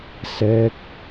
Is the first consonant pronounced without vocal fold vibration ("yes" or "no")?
yes